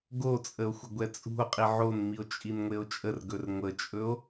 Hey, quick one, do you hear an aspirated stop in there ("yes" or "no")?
no